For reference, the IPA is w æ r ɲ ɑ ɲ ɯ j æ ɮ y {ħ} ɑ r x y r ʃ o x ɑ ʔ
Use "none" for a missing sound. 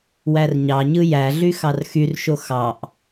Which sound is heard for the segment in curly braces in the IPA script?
x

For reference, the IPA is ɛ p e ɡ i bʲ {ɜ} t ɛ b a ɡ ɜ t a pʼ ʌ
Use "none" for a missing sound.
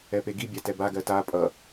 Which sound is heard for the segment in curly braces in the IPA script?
ɛ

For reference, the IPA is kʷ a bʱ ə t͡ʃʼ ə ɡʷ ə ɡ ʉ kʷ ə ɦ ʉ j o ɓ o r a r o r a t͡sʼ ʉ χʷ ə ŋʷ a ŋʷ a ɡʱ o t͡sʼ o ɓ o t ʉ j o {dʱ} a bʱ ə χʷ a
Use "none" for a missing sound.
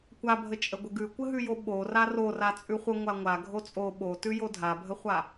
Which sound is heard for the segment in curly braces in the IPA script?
dʱ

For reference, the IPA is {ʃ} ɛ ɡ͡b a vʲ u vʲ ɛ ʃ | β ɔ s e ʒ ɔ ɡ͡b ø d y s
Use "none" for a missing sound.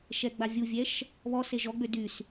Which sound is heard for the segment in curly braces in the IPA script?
ʃ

